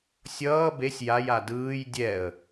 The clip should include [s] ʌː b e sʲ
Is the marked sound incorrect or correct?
incorrect